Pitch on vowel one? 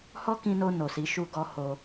high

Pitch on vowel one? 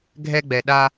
high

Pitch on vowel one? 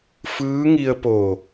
rising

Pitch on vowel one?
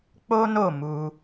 high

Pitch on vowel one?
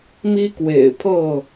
high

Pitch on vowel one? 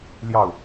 falling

